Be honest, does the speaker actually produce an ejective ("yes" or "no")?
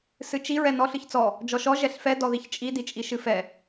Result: yes